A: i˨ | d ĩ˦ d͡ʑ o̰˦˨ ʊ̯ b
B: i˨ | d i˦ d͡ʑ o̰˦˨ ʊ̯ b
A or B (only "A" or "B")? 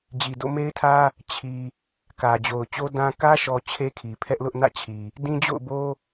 A